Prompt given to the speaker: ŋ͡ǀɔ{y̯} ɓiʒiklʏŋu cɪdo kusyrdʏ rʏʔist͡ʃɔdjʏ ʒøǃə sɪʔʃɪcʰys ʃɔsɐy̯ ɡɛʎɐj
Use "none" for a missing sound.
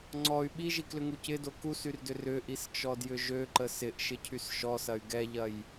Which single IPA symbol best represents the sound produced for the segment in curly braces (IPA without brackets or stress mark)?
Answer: y̯